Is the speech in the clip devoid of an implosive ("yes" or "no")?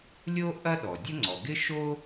no